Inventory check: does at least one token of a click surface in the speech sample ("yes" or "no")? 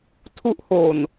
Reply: no